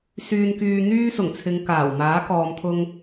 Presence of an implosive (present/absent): absent